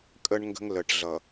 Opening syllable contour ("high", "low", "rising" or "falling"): high